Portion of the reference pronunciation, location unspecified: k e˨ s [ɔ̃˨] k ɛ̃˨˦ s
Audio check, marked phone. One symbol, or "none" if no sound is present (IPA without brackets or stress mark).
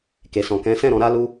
ɔ̃˨